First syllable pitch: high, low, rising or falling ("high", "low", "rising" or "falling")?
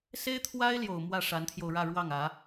high